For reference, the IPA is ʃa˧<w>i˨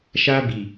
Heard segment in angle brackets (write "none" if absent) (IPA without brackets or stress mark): b